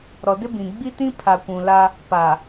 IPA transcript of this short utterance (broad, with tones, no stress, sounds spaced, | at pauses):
ɾ ɔ˨ d ɪ˦ b ĩ˨ ɡ͡b i˦ t ĩ˦ pʰ a˨ kʷ ũ˨ l a˦ | p a˨